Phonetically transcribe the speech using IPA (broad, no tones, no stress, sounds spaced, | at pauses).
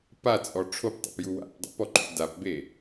p a t͡sʼ ɔ ʈ͡ʂʰ o p tˤ o̰ p j u w a̰ p dˤ ḭ p ɔ ǃ ṵ d a p b e